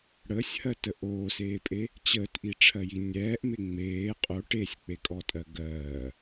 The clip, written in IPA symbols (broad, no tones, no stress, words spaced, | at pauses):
ɽəːsʲhɜtə ʔoːseːpʼe | t͡ɕəːtʔiʈ͡ʂʰɜji nʲɛːʔme ŋ͡meː qʼo ʈesʲk͡pekʼɔtʼɜ ɡɜː